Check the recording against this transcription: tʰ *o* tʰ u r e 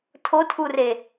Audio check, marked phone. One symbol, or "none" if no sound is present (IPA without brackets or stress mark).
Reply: o